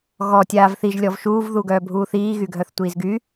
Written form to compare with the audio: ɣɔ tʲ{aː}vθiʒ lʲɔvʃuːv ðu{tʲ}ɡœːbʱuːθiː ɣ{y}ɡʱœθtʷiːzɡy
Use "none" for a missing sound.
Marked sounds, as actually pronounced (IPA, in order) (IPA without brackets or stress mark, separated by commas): aː, none, y